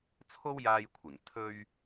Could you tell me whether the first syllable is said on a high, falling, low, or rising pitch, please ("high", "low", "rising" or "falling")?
high